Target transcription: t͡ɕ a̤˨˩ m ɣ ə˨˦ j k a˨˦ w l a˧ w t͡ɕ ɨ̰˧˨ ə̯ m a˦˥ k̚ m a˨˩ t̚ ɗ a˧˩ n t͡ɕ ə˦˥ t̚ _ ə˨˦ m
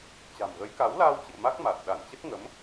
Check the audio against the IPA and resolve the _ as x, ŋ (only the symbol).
ŋ